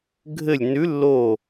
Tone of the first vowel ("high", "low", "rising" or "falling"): falling